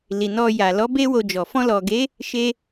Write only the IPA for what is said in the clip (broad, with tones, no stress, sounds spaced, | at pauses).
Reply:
l i˨ n ɔ˧ j a˨ l ɔ˨˦ b e˦ w o˧ d͡ʒ ɔ˨ f ɔ̃˧ l ɔ˨ ɡ e˨˦ | ʃ e˧